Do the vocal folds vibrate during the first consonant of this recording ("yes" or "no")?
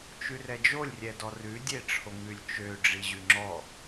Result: no